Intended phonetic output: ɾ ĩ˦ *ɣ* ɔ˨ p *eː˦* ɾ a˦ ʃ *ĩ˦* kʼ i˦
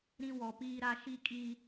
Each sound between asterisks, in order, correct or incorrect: incorrect, incorrect, incorrect

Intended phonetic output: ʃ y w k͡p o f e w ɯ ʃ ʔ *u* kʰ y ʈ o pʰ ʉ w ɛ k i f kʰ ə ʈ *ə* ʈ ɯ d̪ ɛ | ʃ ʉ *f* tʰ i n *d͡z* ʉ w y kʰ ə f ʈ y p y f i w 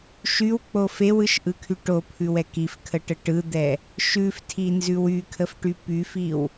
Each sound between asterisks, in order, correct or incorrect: incorrect, correct, correct, incorrect

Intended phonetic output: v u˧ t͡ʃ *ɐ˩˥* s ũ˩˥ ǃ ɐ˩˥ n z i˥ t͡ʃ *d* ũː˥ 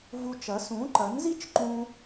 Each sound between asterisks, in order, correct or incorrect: correct, incorrect

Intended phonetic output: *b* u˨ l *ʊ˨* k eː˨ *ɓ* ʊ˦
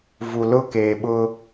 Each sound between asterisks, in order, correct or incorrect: incorrect, incorrect, correct

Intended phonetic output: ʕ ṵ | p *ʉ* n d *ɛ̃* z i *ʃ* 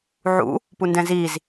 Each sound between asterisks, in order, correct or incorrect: incorrect, correct, incorrect

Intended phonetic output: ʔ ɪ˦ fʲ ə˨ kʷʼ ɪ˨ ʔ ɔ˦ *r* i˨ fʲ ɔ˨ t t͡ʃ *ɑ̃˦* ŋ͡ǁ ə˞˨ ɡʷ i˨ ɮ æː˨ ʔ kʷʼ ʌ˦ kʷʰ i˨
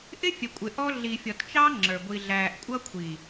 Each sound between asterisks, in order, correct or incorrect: incorrect, incorrect

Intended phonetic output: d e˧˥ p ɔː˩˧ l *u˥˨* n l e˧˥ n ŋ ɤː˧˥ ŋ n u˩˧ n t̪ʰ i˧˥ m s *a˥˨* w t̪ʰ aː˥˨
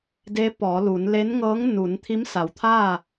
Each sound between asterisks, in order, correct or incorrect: incorrect, incorrect

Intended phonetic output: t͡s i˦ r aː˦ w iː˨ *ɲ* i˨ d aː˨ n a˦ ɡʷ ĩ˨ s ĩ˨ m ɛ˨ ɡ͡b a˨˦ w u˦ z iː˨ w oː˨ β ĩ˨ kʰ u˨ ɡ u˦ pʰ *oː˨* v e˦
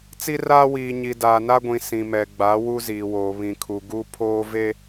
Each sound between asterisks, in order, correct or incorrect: correct, incorrect

